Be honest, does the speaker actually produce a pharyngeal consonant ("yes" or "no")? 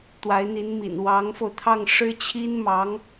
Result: no